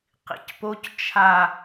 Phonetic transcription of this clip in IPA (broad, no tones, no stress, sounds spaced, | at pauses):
q ḭ c p o c t͡ʃʰ a